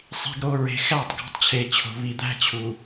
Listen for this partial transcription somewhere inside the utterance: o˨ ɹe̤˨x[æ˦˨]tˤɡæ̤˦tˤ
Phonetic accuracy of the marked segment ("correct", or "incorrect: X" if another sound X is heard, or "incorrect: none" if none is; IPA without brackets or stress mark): correct